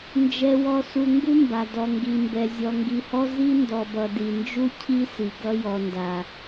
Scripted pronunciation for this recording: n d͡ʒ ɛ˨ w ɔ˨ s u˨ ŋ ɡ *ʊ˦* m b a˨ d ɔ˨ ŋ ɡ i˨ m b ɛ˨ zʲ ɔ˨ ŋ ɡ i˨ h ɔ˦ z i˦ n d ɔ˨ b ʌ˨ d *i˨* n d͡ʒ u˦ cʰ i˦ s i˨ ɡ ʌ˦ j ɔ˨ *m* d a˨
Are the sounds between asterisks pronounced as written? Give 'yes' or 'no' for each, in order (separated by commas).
no, yes, no